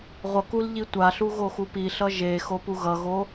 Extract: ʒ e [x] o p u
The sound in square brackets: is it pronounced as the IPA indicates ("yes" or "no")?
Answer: yes